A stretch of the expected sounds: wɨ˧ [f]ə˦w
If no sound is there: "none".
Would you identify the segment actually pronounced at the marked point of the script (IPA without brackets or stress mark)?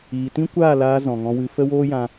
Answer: f